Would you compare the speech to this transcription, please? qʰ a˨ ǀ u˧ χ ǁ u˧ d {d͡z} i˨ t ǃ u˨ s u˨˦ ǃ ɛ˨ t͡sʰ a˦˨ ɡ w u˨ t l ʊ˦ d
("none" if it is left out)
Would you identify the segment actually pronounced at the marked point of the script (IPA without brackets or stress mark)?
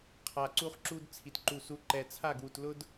t͡sʰ